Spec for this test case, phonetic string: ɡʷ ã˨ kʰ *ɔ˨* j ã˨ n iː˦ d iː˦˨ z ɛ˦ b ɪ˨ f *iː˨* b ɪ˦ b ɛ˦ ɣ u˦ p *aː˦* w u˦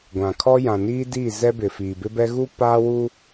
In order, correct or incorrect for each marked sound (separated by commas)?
incorrect, correct, correct